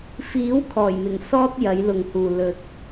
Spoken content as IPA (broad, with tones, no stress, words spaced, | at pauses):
fiː˨˥w kʰɔː˨˩jmɪ˨˩ŋ sɔː˥t̚ jɐ˨˥jlʊ˨ŋhuː˨ lɵ˨t̚